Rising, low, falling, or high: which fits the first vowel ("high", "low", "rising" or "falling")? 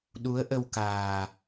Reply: rising